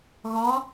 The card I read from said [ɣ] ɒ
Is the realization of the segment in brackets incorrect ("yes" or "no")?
no